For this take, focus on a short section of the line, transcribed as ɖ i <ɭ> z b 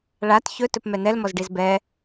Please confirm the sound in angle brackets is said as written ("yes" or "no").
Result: no